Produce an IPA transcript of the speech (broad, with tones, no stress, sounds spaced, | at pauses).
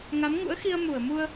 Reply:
ŋ a˨˦ m ŋ ṵ˧˥ ə̯ x i˧ ə̯ m u˧˩ ə̯ m u˧ ə̯